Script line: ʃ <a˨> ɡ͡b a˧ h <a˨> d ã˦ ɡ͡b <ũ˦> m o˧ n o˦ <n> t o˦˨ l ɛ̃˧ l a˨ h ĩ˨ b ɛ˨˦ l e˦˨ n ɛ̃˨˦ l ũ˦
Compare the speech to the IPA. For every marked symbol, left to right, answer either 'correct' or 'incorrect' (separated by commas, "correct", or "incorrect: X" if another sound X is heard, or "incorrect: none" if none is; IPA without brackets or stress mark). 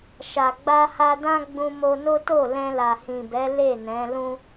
correct, incorrect: a˧, incorrect: ũ˧, incorrect: none